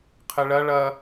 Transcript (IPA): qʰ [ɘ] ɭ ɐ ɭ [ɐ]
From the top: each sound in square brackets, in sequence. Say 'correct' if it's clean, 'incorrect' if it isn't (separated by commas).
correct, correct